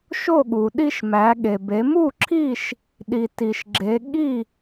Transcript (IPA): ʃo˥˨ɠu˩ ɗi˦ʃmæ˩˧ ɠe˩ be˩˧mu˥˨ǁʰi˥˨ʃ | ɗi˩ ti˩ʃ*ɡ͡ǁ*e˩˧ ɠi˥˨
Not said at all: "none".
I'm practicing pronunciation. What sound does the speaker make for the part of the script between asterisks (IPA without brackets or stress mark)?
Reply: ɡ͡ǁ